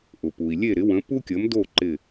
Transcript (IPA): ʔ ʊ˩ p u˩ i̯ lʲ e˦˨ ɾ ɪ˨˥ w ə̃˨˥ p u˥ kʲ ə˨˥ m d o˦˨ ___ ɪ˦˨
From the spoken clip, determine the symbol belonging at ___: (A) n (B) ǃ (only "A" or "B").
B